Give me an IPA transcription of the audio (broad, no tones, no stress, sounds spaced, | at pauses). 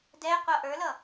d ɛ qʷ ʌ ʔ ə˞ l ʌ